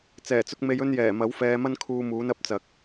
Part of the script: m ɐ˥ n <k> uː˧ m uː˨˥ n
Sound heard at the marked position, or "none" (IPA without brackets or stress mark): kʰ